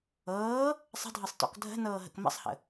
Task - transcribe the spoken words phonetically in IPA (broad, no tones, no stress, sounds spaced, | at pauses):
ɤː | sˤ ə̤ dʱ ɤ sˤ t ɔ̰ k dʱ ə̤ n ɤː ɦ ə̰ k m ə̰ sˤ h ə̰